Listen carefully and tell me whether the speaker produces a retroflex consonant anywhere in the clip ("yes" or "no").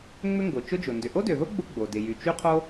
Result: no